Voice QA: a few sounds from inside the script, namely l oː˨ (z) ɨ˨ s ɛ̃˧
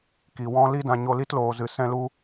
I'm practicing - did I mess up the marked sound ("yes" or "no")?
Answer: no